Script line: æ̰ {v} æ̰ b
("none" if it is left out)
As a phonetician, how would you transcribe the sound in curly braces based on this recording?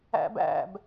b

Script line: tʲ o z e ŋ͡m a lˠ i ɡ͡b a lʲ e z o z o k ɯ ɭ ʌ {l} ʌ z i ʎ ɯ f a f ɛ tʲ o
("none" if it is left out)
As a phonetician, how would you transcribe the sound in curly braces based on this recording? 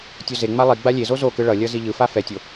lʲ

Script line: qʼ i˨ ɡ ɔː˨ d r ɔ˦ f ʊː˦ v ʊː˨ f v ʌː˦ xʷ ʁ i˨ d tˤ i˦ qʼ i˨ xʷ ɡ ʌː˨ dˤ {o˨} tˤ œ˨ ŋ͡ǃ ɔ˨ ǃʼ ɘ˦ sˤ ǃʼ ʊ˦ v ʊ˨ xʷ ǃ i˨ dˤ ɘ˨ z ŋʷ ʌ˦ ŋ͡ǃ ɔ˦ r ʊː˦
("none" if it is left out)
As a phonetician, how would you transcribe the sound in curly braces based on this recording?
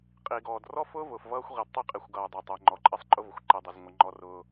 o˨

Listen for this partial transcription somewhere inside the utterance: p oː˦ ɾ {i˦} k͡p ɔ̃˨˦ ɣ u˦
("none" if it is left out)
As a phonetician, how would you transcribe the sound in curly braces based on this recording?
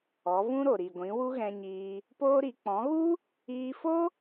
i˨˦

